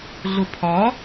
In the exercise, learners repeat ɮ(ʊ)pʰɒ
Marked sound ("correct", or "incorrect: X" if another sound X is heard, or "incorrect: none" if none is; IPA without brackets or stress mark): correct